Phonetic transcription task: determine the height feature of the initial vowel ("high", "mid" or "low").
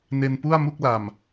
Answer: mid